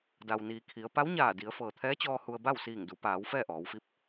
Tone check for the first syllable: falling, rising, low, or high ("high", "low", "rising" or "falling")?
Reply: low